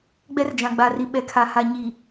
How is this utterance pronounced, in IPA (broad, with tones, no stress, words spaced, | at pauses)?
ɡ͡bɛ˦rd͡ʒã˨ɡ͡ba˨ri˨ ɓɛ˨kʰa˨ha˨ ɲi˨